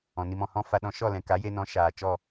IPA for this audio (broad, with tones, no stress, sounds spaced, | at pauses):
ɔ̃˨ n i˧ m ɔ̃˨ h ɔ̃˦ f a˧ ɗ ɔ̃˧ ʃ ɔ˦˨ l ɛ̃˨ k a˨˦ j e˧ n ɔ̃˨˦ ʃ aː˨ t͡ʃ ɔ˦˨